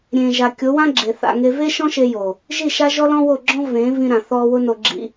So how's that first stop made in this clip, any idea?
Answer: plain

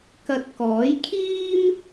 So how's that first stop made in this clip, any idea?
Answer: plain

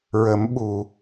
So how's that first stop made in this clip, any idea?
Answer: implosive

